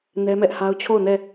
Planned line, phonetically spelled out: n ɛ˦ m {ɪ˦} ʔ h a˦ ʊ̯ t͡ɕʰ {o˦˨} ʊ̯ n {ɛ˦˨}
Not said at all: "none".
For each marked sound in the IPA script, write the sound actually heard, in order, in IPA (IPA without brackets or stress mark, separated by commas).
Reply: ɛ˦, o˦˨, ɛ˦˨